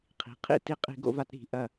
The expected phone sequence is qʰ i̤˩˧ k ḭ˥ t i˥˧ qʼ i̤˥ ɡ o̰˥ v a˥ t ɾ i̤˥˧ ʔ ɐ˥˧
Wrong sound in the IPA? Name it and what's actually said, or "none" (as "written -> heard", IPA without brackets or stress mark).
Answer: k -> qʰ